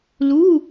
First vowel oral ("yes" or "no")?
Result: yes